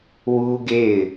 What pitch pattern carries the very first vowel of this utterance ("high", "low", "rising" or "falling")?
high